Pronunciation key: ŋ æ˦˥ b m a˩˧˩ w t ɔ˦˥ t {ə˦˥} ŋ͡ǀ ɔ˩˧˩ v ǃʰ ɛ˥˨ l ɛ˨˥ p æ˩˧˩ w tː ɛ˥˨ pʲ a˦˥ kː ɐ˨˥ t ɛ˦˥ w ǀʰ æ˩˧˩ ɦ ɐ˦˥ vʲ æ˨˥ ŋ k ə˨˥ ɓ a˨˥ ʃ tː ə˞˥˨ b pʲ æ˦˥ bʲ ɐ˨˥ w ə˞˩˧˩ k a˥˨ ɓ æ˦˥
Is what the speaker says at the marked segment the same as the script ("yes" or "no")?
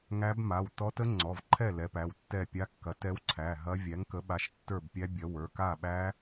yes